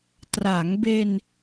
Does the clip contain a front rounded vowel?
no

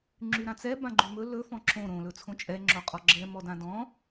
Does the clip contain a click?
yes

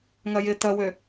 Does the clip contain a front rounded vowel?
yes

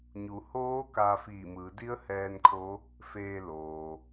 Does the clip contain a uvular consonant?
no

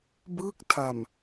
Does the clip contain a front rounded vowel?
no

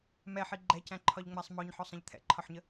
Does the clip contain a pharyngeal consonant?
yes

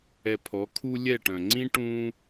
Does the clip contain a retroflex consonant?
yes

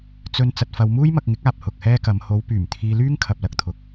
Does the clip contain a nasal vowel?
no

